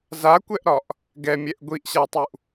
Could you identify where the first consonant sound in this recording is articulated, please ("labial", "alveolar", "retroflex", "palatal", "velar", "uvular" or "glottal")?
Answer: alveolar